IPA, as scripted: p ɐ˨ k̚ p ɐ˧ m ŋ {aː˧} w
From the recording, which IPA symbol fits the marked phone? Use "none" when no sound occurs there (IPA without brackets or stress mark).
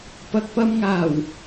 aː˨˩